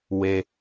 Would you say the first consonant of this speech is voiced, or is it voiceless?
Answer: voiced